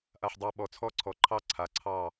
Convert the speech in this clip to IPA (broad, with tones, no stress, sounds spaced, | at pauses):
ʔ a˩ ħ dˤ ɑ˧˩ ɓ ɔ˩ t͡sʰ ɔ˧˩ ǀʰ ɔ˩ ǃʰ ɑ˧˩ ǀʰ a˩ ǀʰ ɑ˧˩